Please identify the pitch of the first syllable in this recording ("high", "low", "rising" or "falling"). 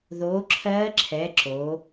rising